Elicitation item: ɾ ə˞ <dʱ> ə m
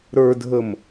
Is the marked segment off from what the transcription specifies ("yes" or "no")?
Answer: no